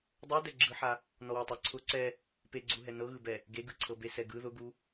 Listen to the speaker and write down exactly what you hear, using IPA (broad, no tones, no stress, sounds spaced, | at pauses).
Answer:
dˤ ɜ d ɛ ɡ͡ǁ ɯ ħ a | n ɔ w ɛ tˤ ɛ ǀʰ ʊ ǀ ɛ | p e ɡ͡ǀ u ɦ ɛ n ɤ ɣ ɯ b ɛ | ɡ e ɡ ɯ ǀʰ ɤ b e s ɛ ɡ ɯ ð ʊ ɡ u